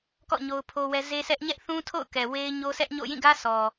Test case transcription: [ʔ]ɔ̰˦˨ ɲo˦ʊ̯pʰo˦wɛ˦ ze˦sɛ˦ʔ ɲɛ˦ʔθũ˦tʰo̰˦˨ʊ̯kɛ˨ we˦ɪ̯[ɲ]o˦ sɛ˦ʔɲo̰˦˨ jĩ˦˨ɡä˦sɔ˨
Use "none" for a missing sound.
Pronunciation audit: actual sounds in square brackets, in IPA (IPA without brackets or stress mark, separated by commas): k, ɲ